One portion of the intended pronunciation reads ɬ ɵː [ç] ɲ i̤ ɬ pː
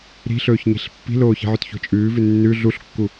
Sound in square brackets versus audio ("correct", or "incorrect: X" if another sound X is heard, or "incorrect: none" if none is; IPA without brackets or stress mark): correct